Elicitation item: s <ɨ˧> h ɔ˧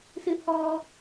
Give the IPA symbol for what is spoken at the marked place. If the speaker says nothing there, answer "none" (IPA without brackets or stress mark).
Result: ɨ˧